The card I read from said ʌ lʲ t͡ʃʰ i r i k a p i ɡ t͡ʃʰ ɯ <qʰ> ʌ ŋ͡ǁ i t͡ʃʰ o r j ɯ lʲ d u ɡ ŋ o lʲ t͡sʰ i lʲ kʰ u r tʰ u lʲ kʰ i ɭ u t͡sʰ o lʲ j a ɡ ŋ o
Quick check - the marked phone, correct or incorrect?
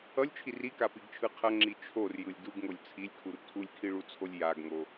correct